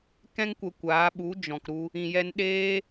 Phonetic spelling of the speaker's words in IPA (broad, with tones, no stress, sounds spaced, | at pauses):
k ɛ̃˦ ŋ kʷ ə˧ kʷ aː˨˦ ɓ u˨˦ d͡ʒ ɔ̃˨ k ɾ u˧ | ĩ˨ j ɛ˧ n ɗ eː˦